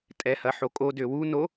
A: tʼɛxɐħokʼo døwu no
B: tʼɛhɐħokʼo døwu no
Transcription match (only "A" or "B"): B